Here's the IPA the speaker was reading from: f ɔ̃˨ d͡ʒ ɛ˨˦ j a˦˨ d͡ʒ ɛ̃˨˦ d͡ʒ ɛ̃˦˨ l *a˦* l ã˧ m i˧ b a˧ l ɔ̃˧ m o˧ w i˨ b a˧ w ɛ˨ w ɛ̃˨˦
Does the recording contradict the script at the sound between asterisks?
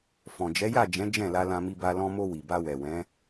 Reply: yes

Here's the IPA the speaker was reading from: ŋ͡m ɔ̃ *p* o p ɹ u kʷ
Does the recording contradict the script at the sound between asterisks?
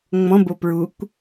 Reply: yes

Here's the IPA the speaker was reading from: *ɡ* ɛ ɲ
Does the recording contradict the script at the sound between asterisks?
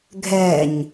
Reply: yes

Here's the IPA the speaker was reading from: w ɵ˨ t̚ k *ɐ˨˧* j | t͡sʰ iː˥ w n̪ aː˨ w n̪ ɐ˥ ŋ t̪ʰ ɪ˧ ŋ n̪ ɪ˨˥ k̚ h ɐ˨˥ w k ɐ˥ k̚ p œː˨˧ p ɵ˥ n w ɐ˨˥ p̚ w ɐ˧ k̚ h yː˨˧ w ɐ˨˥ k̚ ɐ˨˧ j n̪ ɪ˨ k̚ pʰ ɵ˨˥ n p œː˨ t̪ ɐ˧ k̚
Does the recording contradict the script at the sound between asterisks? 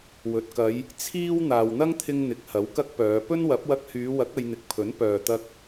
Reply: no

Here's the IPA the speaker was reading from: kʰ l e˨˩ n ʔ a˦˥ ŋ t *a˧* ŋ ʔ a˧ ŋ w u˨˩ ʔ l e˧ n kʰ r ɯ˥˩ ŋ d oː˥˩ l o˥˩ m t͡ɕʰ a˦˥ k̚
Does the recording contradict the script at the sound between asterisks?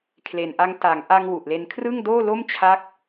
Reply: yes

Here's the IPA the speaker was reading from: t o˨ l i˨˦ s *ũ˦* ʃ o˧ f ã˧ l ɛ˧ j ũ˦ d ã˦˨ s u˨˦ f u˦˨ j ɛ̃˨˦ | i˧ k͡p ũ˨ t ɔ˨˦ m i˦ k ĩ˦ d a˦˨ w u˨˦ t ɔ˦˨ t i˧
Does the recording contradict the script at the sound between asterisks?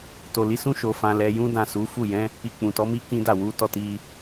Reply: no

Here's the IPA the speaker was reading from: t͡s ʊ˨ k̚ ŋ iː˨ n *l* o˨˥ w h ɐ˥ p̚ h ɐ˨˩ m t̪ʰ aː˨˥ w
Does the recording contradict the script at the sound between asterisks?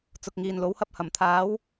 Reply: no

